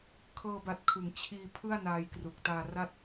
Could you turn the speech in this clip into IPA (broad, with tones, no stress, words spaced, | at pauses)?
kʰɤː˧ba˨˩t̚kʰɯ˩˦ŋ t͡ɕʰiː˧ pʰɯ˥˩a̯naː˧jkru˨˩k̚ taː˧ra˥˩t̚